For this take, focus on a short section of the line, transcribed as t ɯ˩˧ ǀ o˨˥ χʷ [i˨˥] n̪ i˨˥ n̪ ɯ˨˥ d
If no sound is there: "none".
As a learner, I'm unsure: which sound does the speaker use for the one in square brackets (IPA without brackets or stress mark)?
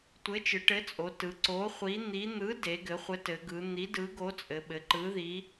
i˨˥